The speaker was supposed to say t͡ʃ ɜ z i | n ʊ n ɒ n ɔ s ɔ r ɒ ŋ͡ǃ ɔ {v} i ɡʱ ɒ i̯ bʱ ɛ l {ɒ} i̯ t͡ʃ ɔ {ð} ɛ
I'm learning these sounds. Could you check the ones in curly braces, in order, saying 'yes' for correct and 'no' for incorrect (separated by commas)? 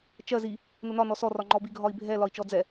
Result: no, yes, no